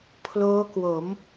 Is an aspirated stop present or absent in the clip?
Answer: present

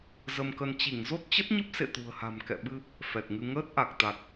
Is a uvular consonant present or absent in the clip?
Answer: absent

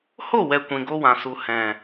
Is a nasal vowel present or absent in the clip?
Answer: present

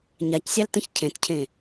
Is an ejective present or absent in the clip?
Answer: absent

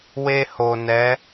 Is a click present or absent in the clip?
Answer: absent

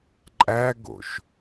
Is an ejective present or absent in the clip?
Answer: present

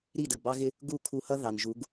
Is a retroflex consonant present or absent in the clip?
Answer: absent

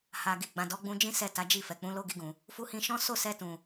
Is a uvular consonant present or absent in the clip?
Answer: absent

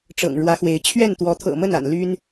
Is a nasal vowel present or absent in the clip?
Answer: absent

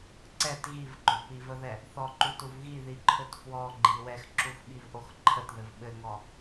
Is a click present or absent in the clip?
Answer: present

